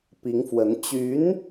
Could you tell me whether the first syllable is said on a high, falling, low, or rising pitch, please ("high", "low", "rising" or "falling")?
rising